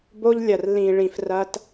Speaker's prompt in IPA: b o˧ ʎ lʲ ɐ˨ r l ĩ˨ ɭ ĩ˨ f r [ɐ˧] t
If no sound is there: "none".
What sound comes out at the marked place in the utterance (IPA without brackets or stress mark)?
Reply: ɐ˧